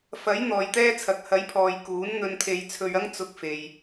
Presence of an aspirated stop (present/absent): present